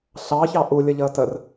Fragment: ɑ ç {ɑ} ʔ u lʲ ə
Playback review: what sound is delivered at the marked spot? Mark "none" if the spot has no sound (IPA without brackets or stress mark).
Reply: ɑ